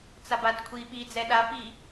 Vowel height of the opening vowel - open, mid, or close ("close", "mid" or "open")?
open